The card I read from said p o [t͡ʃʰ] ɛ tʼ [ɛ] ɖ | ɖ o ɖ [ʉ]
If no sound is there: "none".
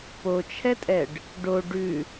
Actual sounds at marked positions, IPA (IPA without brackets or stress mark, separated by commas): t͡ʃʰ, ɛ, ʉ